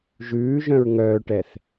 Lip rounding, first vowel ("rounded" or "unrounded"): rounded